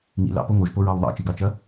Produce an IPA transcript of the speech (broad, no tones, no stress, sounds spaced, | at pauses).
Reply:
ŋ ḭ l ɑ̰ p o ŋ o ʒ p o ɹ ɑ w ðˤ ɑ̰ t͡ʃ i ɡ ɑ t͡ʃ ɐ